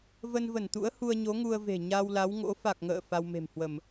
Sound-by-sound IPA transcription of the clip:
və˧nvə˧˩nt̪ṵ˧˥ə̯ hu˧ə̯ɲo˨˦ ŋu˧ə̯ve̤˨˩ ɲa˧wla˨˦w ŋo̰˧˥ fa˨˩k̚ŋə̰ː˧˨ fa˧wme̤˨˩mhwə˧˩˨m

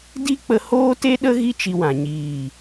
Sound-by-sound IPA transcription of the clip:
di˦k͡pə˧ hoː˦te˦ɗə˦ ɣi˦t͡ʃi˧wã˨ ɲiː˨

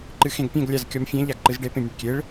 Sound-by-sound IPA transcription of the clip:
ǃɨxẽɡpʲɛ̃ɡ lʲazkʲɔmfʲɛ̃ ʎaɡǃɨzɖe pẽmʲɨɖkʲeɭ

